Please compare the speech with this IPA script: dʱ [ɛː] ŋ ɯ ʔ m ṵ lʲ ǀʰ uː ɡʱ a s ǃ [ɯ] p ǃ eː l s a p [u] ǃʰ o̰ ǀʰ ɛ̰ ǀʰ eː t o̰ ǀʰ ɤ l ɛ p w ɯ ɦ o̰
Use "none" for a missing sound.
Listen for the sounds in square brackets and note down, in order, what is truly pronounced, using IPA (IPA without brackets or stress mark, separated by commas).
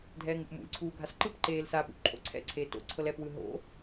ɛː, ɯ, ṵ